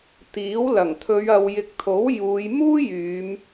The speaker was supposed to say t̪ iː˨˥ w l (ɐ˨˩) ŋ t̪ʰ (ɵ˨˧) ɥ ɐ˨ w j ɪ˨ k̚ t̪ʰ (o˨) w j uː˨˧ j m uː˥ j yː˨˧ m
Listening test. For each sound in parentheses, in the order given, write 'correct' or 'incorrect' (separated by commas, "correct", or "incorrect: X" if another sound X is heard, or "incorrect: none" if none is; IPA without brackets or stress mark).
correct, correct, incorrect: o˨˥